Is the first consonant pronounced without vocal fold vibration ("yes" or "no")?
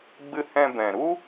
no